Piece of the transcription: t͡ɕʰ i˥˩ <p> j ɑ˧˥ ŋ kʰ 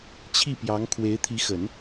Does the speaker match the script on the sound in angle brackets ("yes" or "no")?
yes